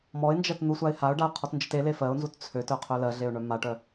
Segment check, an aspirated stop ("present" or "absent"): present